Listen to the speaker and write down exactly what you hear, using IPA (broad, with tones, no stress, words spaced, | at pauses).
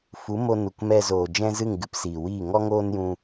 fu˨˦ mo˧nu˨kmɛ˧zoː˨ d͡ʒɛ̃˦zɨ˦˨ŋɡɨ˧p siː˨wiː˦˨ ŋɔ˦ŋoː˦njũ˧